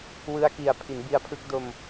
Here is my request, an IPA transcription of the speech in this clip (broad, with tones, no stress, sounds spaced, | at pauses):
w ɯ˧ a̯ k i˨˩ a̯ pʰ i˩˦ n b i˧ a̯ pʰ ɯ˦˥ k̚ d o˧ m